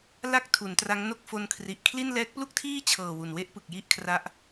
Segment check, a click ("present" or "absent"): absent